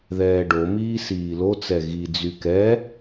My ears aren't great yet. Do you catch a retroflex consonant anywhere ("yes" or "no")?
yes